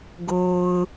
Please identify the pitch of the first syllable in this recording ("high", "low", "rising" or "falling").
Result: low